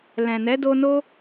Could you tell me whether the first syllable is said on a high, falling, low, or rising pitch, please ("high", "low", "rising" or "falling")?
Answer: low